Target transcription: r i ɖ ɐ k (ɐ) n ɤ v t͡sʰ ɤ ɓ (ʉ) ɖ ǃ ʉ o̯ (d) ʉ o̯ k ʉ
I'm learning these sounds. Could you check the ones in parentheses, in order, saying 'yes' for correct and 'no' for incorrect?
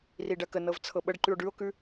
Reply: no, no, no

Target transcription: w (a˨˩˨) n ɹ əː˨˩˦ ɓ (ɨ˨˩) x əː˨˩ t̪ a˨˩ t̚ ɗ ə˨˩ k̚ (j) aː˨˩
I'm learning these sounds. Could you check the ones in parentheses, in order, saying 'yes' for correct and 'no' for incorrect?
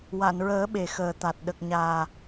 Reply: yes, no, no

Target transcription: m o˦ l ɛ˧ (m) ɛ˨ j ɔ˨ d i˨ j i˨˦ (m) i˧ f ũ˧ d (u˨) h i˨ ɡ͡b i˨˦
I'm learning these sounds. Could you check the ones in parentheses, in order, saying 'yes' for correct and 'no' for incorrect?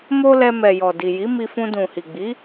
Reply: yes, yes, no

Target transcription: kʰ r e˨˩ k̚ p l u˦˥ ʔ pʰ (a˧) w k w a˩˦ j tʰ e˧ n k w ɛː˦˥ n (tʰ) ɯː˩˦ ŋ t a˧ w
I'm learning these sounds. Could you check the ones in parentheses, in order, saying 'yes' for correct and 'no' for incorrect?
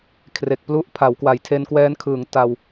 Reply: no, no

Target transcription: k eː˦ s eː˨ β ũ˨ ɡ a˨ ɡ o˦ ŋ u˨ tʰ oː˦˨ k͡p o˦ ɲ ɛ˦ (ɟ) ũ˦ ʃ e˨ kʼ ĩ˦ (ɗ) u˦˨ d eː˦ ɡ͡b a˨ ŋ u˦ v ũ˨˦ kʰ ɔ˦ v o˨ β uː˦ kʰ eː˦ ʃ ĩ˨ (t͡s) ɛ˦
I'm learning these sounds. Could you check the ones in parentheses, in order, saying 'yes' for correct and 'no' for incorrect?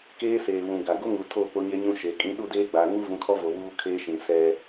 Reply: no, yes, no

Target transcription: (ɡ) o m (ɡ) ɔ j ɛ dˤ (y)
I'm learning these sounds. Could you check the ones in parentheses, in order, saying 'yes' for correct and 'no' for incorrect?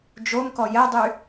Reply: no, no, yes

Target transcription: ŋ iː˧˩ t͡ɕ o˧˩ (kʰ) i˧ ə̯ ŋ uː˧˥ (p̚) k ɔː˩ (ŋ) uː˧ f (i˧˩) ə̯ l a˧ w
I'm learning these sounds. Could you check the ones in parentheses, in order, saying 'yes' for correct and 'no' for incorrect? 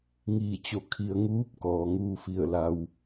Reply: yes, yes, yes, yes

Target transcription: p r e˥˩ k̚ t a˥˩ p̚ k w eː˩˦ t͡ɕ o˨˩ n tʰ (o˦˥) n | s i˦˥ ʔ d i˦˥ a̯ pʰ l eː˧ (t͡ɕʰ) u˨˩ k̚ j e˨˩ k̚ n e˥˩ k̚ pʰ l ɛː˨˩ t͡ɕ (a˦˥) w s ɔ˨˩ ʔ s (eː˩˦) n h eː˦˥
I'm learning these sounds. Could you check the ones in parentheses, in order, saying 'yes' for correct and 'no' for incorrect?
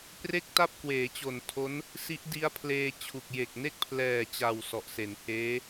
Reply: yes, yes, no, no

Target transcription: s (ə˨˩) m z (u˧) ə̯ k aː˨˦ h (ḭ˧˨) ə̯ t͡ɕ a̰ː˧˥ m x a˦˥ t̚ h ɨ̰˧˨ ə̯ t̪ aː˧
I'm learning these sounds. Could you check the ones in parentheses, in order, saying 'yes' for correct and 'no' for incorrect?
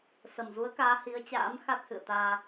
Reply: yes, no, no

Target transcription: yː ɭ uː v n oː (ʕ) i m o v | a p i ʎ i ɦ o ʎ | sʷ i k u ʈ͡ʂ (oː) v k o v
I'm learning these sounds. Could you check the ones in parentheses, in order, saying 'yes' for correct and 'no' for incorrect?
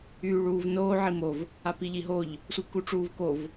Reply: yes, no

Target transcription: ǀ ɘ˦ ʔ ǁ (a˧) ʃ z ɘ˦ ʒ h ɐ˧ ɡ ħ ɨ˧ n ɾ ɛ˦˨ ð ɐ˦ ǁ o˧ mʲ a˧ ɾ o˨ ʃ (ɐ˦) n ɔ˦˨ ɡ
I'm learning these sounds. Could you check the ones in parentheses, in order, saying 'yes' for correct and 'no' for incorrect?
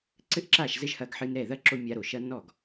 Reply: no, yes

